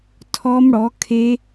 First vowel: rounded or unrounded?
rounded